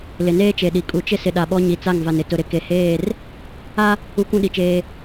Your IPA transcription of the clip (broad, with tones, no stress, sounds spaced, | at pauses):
l ɪ˨ n eː˦ t͡ʃ e˨ ɗ i˨ kʼ u˨ t͡ʃ ɪ˦ s ɪ˨ ɗ a˨ ɓ ɔ˦ ɲ i˨ t͡s a˦˨ ŋ v a˨ n ɪ˨ t ʊ˨ ɾ ɪ˨ k e˨ h eː˦˨ r | a˦ | u˦ kʷ ũ˦ ɗ i˨ t͡ʃ eː˦